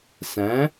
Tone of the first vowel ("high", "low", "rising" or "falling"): rising